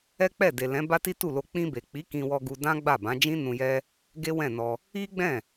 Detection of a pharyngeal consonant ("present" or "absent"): absent